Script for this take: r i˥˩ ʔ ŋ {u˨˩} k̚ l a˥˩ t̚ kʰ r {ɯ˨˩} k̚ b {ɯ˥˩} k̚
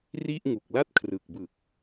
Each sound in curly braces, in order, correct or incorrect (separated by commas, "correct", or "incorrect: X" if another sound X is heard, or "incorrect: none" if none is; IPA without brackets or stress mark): correct, correct, incorrect: ɯ˨˩